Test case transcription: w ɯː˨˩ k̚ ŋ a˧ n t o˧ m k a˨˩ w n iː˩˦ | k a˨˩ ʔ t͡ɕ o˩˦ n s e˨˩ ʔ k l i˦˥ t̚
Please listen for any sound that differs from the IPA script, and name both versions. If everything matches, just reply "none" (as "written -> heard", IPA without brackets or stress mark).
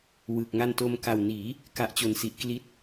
e˨˩ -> i˨˩